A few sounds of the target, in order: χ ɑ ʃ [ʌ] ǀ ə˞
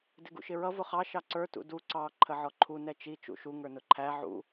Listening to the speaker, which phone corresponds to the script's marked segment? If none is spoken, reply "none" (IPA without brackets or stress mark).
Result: ɑ